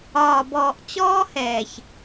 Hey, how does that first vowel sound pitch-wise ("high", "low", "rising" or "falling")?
low